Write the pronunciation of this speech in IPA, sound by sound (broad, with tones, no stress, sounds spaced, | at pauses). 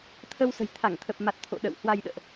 t̪ʰ ə˧ w s ə̤˨˩ j t̪ʰ a˧˩ ŋ t̪ʰ ə˨˩ p̚ m a˨˩ t̚ t̪ʰ o̰˧˨ ɗ ə̰˧˨ w h w a˧ j ɗ ə̰ː˧˨ ʔ